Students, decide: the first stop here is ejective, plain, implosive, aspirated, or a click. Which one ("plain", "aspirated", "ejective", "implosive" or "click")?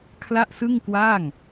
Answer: aspirated